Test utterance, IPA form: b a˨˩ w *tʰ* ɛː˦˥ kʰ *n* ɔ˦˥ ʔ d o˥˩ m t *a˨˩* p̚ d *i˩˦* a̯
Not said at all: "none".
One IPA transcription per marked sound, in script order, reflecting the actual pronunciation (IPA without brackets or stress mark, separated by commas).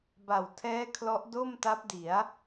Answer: tʰ, l, a˦˥, i˩˦